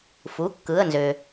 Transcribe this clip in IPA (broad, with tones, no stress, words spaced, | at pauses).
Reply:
fu˩˧˩ kːɯ˩˧˩ə̯nzø˩